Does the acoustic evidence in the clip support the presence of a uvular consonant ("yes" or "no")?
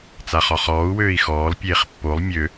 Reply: yes